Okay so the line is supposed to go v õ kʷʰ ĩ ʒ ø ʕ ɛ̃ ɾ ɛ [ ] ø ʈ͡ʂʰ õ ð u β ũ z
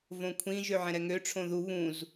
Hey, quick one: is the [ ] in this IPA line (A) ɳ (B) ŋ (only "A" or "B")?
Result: B